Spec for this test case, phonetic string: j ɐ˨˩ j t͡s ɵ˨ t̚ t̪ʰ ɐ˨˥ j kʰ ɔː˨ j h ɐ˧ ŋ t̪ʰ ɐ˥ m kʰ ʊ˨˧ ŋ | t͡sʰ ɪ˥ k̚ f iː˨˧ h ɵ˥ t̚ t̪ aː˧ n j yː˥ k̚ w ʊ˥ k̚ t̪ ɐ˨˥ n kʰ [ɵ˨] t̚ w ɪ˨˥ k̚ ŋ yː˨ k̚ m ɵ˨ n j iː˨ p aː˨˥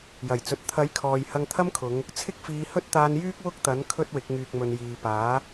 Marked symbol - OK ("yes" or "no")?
no